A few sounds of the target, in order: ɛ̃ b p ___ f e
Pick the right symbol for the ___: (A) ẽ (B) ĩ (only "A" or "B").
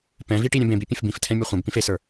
B